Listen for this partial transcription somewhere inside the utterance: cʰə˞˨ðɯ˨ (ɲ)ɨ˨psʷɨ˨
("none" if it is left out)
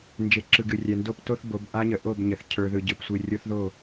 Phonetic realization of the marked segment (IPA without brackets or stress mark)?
ɟ